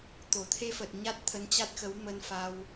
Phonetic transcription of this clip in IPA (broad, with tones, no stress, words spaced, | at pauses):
t̪o˧˩t̪ʰe˧fə˨˩t̚ ɲa˦˥t̚t̪ʰə˧nt͡ɕa˦˥t̚ xə˨˦wmə˧nfa˧w